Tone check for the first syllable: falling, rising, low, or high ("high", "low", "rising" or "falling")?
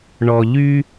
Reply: low